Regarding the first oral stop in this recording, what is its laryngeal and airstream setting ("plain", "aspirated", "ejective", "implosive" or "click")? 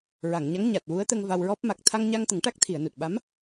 plain